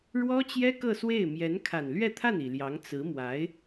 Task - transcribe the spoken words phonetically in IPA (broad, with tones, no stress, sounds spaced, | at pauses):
ɻ w ɔ˥ t͡ɕ j ɛ˥ k ɤ˥˧ s w e˥˩ ɪ̯ m j ɛ˧˥ n kʰ a˨˩ n l ɥ ɛ˥˧ t̪ʰ a˥˩ n i˨˩ l j ɑ˧˥ ŋ t͡s ɹ̩˧˥ m w a˧˥ ɪ̯